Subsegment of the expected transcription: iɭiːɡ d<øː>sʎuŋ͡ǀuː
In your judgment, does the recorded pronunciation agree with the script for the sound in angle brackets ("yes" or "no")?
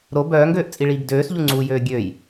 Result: yes